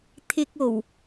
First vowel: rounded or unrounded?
unrounded